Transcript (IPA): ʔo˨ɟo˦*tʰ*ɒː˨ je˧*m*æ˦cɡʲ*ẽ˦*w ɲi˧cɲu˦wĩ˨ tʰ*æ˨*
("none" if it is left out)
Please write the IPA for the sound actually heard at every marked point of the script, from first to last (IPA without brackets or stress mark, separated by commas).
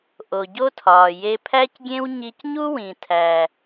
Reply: tʰ, pʰ, ẽ˦, æ˨